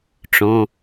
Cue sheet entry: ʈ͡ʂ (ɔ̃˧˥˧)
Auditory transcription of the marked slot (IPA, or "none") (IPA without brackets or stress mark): ɔ̃˧˥˧